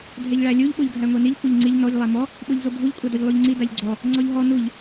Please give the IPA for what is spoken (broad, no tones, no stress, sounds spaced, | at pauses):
dʱ ɛ ʎ ɭ æ lʲ u ʎ ɓ o ʎ ɡʱ æ ŋʷ ɛ n i ʎ kʷ ɛ ʎ ŋ͡ǀ i ʎ n ɔ ʎ lˠ æ m ɔ | ɓ o ʎ z o bʱ u ʎ kʷʼ a d ɔ ʎ lˠ u ʎ ŋ͡ǀ i d a ʎ ɡ͡ǀ ɔ | ŋ͡ǀ ɔ ʎ ɦ ɔ n u ʎ